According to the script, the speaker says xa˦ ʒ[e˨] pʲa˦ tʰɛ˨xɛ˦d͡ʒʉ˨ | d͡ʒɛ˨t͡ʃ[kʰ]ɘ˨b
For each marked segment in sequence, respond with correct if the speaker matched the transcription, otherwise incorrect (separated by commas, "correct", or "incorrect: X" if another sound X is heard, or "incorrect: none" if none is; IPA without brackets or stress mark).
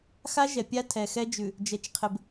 incorrect: ɛ˨, incorrect: qʰ